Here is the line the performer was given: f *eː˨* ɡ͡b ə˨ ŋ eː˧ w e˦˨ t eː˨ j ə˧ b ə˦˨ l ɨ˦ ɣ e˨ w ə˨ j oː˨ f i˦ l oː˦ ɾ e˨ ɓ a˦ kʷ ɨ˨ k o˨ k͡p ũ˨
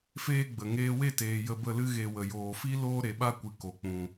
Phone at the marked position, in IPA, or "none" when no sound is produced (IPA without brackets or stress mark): eː˦